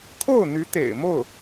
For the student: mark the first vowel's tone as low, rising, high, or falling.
falling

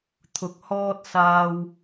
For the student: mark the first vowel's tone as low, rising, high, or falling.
rising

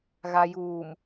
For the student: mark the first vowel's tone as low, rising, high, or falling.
low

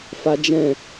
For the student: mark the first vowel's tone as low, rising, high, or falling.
high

